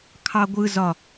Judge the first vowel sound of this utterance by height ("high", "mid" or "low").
low